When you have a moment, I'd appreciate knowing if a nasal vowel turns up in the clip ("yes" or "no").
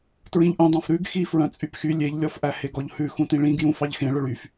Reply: yes